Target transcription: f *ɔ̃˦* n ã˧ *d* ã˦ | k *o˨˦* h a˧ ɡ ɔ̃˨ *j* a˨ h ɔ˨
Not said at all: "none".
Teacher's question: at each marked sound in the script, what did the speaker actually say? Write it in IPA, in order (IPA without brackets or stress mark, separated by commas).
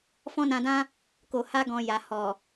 ɔ̃˦, d, o˨, j